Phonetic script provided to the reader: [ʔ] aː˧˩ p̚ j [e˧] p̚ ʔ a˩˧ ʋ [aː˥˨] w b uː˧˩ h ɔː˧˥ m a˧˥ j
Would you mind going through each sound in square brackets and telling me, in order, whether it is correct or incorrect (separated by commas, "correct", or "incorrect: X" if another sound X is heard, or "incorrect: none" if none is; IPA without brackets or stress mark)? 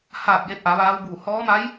incorrect: h, correct, incorrect: aː˧˥